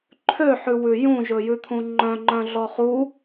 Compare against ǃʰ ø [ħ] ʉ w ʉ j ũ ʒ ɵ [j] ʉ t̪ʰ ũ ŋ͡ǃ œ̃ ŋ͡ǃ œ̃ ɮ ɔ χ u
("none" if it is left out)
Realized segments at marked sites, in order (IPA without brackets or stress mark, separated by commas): ħ, j